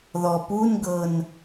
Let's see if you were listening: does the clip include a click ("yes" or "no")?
no